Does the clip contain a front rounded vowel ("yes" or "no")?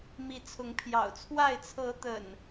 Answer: no